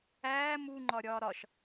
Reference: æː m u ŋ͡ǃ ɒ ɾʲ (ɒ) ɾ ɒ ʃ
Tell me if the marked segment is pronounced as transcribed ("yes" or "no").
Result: no